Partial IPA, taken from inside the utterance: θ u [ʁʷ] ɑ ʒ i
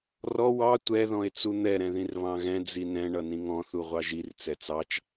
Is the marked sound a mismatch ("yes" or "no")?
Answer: no